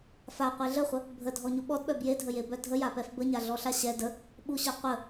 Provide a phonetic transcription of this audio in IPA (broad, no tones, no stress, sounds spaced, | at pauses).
f a qʷ e ɮ ə χʷ ə | bʱ ə dʱ ɔ ɲ u ɓ ɔ d ɓ œ b j e dʱ ə j e b œ dʱ ə j a p ɛ f b ə ɲ a ɮ ɔ ɬ a ɕ ɛ d ə | ɓ u ɕ œ qʷ ə